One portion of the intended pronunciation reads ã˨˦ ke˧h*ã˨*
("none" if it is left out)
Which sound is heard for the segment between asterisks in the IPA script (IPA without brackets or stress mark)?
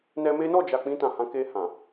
ã˨